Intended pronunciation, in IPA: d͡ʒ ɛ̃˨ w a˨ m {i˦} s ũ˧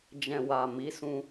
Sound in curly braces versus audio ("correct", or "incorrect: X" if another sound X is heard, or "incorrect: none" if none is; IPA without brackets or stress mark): incorrect: i˨˦